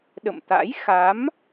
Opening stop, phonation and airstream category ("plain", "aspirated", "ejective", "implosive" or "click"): implosive